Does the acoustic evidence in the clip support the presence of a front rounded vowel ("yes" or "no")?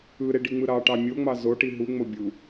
no